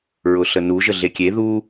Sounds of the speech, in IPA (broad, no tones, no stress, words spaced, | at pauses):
ɹʊɬənu ʒəɮekʲe ðu